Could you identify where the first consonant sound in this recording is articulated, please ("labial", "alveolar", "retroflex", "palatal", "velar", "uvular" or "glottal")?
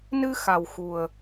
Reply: alveolar